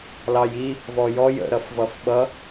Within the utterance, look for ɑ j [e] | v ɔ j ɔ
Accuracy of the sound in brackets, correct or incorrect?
incorrect